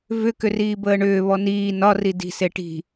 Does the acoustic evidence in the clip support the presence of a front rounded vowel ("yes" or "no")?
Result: yes